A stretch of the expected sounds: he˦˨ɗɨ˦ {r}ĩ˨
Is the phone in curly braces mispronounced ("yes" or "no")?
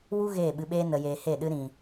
yes